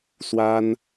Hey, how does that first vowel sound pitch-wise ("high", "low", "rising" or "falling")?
high